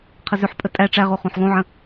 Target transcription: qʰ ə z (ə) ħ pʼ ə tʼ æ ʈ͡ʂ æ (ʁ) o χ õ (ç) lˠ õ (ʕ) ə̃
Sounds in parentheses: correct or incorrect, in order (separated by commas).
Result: incorrect, correct, incorrect, correct